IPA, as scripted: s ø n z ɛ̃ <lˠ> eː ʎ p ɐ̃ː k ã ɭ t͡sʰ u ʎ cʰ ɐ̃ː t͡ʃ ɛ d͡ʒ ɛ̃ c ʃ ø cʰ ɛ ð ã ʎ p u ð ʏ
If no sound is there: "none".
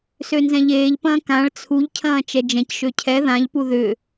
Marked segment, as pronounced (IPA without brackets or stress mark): ʎ